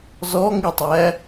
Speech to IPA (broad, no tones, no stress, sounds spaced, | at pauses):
z ɔ ŋ i tˤ æ